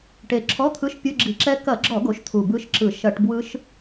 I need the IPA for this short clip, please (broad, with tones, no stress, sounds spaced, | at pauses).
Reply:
ʈ e˨˩ ǁʰ ɔ˧˥˧ t̪ʰ ɯ˧˥˧ ʃ pʲ o˧˥˧ ɡ͡ǁ i̤˧˩˧ ǁ ɛ˦˥ k ɐ˧˩˧ ɡ͡ǁ ɔ˧˩˧ ɡ o˩˥ ʃ t̪ʰ u˨˩ b ɯ˦˥ ʃ ǁ ɯ˧˩˧ ʃ ɐ˧˩˧ ʈ b w ɯ˦˥ ʃ